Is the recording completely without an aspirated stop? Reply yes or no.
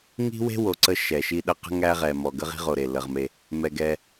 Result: yes